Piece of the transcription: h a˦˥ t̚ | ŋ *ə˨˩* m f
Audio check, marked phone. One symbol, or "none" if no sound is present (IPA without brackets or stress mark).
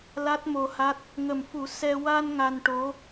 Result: ə˨˩